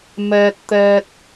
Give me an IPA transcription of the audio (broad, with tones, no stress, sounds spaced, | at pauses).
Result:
m ɛː˧ t̚ t̪ ɛː˧ t̚